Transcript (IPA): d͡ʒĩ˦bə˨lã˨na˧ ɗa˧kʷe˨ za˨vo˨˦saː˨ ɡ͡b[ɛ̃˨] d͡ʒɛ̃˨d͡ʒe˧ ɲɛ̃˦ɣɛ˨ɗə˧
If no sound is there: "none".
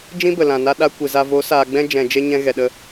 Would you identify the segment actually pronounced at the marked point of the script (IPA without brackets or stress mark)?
ɛ̃˧